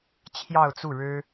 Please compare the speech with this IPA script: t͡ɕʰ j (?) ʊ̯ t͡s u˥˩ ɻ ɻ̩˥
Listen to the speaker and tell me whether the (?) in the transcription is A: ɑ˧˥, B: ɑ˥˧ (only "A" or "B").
B